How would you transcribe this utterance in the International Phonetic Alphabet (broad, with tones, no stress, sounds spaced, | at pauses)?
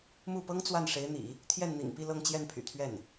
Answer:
m u˥˩ p ɤ˥ ŋ t͡s w a˥˩ n ʂ e˧˥ ɪ̯ n̪ ḭ˨˩˦ | t̪ʰ j ɛ˥˩ n n̪ ḭ˨˩ ŋ p i˥˧ l ɤ˥˧ ŋ t͡ɕ j ɛ˥˩ n pʰ y̰˨˩ t̪ʰ ɥ ɛ˥˩ n